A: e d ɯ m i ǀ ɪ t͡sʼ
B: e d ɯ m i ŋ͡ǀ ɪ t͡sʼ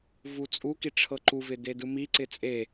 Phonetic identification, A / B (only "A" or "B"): A